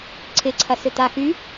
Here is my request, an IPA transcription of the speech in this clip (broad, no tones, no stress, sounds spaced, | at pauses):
ǀʰ ɪ ǀʰ ɐ s ʏ t̪ a x y